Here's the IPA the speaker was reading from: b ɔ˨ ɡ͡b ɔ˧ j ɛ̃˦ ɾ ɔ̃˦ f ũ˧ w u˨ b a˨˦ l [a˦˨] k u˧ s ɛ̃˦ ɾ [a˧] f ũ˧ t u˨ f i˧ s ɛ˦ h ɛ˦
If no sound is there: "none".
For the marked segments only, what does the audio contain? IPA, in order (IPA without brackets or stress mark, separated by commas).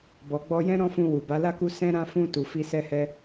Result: a˦˨, ã˧